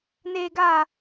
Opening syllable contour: low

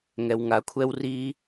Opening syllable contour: low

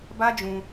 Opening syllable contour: high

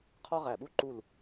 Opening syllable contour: high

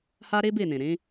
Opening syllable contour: high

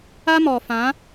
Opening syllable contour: high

